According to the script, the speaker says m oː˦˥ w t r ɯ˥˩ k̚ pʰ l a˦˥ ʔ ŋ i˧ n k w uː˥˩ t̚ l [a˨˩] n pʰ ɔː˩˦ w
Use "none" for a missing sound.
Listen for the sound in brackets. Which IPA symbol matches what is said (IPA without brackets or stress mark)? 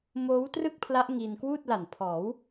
a˨˩